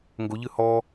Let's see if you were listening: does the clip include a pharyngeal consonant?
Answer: no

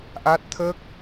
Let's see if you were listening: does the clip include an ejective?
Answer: no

